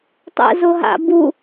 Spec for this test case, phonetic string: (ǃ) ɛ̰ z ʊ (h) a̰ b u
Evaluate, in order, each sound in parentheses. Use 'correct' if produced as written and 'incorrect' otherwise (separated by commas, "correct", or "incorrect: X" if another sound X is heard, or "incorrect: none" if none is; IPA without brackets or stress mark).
incorrect: tˤ, incorrect: ɦ